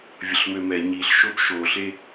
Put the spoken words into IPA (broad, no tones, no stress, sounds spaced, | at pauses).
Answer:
vʲ ə ɬ m ø m ɛ ɲ i ɬ ʃ o b ʃ o ɬ e